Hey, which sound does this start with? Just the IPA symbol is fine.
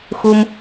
x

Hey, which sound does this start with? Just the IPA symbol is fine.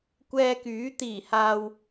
kʷ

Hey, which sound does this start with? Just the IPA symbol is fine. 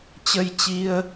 t͡ɕ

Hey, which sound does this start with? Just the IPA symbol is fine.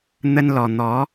n̪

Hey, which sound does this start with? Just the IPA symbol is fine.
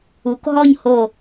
u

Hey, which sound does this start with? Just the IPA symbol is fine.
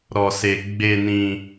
ɾ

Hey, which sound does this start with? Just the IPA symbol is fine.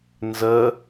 n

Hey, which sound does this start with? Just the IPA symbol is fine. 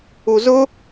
u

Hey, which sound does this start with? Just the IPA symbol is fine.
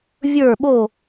vʲ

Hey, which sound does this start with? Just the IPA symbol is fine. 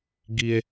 ɡ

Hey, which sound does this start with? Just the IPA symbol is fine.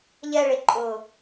ʎ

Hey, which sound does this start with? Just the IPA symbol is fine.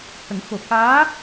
h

